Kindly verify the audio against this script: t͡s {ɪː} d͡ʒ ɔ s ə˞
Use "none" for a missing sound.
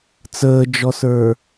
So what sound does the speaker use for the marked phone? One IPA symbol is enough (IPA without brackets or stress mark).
əː